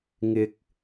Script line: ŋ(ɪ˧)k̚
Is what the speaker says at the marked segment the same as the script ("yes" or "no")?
yes